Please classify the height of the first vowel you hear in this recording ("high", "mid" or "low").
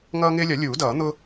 mid